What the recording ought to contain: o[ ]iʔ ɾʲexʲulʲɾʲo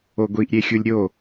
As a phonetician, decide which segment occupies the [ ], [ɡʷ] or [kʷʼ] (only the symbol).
ɡʷ